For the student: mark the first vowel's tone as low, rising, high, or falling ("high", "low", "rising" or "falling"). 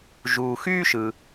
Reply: low